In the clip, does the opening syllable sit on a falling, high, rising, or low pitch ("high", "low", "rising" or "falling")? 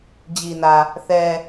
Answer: low